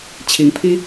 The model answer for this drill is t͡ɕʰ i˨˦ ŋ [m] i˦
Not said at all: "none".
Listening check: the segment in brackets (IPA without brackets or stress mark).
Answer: pʰ